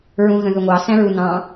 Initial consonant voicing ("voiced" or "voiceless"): voiced